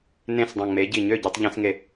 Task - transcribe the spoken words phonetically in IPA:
n ẽ˥˩ s dˤ ə̃˧˩ ŋ͡m e˨˥ ɟ i˧˩ ɲ ø˥˩ ɟ ɛ˧˩˧ tˤ ʎ ẽ˧˩˧ s ŋ e˧˩

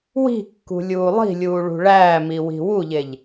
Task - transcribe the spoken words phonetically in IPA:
w i̤ kː ṳ lʲ uː lˠ i̤ lʲ uː ɭ ṳ ɭ æː m i w i̤ w u ʎ e ʎ

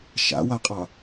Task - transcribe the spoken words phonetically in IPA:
ʃ a̰ w a qʼ ɑ

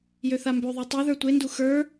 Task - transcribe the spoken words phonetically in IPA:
j ø θ a m b ø ðˤ e tˤ ø ð ə˞ tʷ e n d u x ə˞

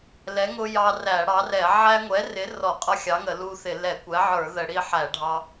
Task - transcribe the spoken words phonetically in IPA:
l ɛ˨˥ ŋ ʊ˦ j ɑ˦ r æ˧˩˧ ɽ ɑ˨˥ r ɛ˧˩˧ ʕ æ˦ ŋʷ ɛ˨˥ r ɪ˨˥ r ɔ˧˩˧ qʼ ʌ˦ xʲ ɑ˨˥ ŋ ə˧˩˧ l u˦ θ ɪ˧˩˧ l ɛ˧˩˧ kʷ ɛ˨˥ ʕ ə˞˧˩˧ ð ə˧˩˧ ɽ i˦ ħ æ˧˩˧ ɖʱ ɑ˦

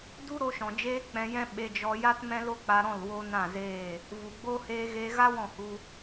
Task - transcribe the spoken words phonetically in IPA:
d u˦ ɾ o˦ ʃ ɔ̃˨ d͡ʒ eː˦ k͡p ɛ̃˧ j ɛ̃˦ ɓ e˧ d͡ʒ ɔ˧ j a˦ t m ɛ̃˦ l o˦ k͡p a˧ ɾ ɔ̃˦˨ l w o˦ n ã˦˨ z eː˦˨ | v u˨ ɡ͡b o˦ h eː˧ ɣ eː˧ ɣ a˦ w ɔ̃˦˨ h u˧

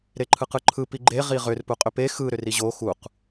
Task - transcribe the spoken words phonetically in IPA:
ɾ e ǃʰ ɯ q ɯ ǃʰ ɯ p i ɡ͡ǃ e ʁ i ʁ ʏ r p u qʼ ʏ p e x ɯ ɾ ʏ r i ʑ o x u q

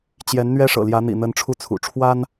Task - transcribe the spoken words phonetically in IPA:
t͡ɕ j ɛ˧˥ n n̪ ɥ ɛ˥ ʂ ɤ̰˨˩ l j ä˧˥ n̪ ḭ˨˩ n̪ ə˧˥ n ʈ͡ʂʰ u˥˩ t͡sʰ ṵ˨˩ ʈ͡ʂʰ w a˥ n

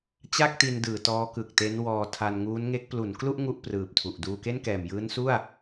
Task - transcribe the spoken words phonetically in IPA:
t͡ɕ a˥˩ k̚ t i˧ n d ɯː˩˦ t ɔː˦˥ k ɯ˨˩ k̚ t e˦˥ n w ɔː˧ tʰ a˧ n ŋ uː˦˥ n ŋ e˦˥ k̚ p l u˩˦ n k l u˥˩ ʔ ŋ u˥˩ ʔ p r ɯː˨˩ p̚ tʰ u˨˩ ʔ d uː˧ k e˥˩ n k ɛː˨˩ m j ɯː˦˥ n s u˥˩ a̯

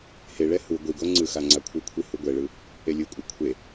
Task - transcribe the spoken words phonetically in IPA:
h e ɭ ɛ h u ɡʷ i ɡ o ŋ͡ǀ ɯ x a ŋ͡ǀ a kʷʰ ɯ kʷʰ i h u ɡʷ ɛ ɭ ɯ | e lʲ ɯ kʷʼ ɯ kʷʰ e

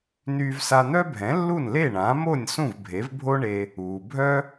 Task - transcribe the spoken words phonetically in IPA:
n yː˧ v s a˧ n̪ œ˥ bʱ ɛ̃˩˥ lː u˥˩ n l e˥˩ ɳ ãː˩˥ m o˥˩ nʲ s ũ˥˩ v bʱ e˩˥ v bʱ o˥ ɳ e˧ | uː˩ bʱ œ˥

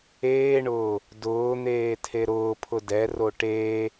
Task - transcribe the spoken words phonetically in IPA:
eː ɳ ʊː | d ʊː n̪ eː tʰ e ɾ ʊː pʰ ʊ d ɛ r o ʈ eː

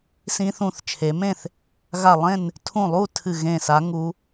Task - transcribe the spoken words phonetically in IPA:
s ĩ˧ θ ũ˧˩ θ t͡ʃʰ e˩˧ m ẽ˥˨ θ | ɣ a˧˩ lˠ ẽ˥˨ n | tʰ ũ˧˩ lˠ u˥˨ tʰ ɨ˧˩ ɣ ẽ˧˩ s a˩˧ ŋ u˩˧

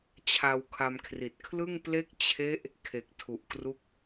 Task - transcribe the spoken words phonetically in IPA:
t͡ɕʰ a˧ w kʰ a˧ m kʰ r i˨˩ t̚ kʰ l ɯ˥˩ ŋ p l e˥˩ k̚ t͡ɕʰ e˦˥ ʔ | kʰ e˨˩ k̚ tʰ u˨˩ ʔ k r u˦˥ k̚

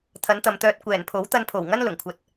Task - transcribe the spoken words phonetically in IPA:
t̪ʰ ɐ˨˥ n t̪ ɐ˨ m t̪ œː˧ t̚ kʷ ɛː˨˩ n pʰ o˨˥ w t̪ ɐ˧ n pʰ o˨˩ w ŋ ɐ˥ n l ʊ˨˩ ŋ kʷʰ ɐ˧ t̚

